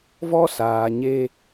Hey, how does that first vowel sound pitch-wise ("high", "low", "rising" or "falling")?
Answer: high